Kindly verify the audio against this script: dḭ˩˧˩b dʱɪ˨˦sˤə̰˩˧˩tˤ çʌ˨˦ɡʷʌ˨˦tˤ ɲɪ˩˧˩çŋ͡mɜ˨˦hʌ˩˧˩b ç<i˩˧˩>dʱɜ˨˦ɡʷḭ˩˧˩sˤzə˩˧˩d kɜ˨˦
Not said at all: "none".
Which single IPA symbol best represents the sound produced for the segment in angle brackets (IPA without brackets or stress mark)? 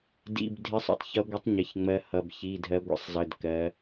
i˩˧˩